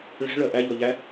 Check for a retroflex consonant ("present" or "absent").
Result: present